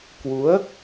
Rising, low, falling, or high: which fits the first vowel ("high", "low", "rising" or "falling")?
rising